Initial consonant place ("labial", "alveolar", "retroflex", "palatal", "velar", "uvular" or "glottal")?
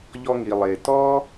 palatal